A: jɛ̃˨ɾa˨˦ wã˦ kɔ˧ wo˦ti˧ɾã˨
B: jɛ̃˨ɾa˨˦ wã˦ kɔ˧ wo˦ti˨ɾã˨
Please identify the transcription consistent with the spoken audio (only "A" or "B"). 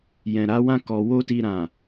A